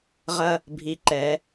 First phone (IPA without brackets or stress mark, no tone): ʁ